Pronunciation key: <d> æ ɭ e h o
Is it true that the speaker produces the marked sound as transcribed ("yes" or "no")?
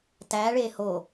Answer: no